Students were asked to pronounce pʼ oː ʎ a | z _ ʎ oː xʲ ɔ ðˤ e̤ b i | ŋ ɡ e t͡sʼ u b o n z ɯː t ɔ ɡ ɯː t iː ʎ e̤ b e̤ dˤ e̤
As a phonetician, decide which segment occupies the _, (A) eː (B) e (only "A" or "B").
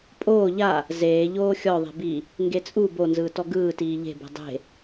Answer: A